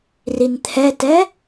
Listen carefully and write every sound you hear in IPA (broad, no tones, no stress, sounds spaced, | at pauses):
r i n t̪ʰ ɛ t ɛ